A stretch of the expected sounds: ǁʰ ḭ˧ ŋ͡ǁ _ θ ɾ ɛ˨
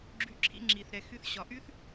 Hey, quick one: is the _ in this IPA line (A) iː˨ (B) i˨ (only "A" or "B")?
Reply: B